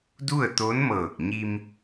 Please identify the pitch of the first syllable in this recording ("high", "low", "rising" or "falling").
falling